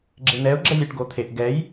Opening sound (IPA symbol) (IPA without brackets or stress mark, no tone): ɡ͡ǁ